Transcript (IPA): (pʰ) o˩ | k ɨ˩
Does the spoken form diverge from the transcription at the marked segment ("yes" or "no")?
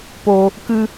yes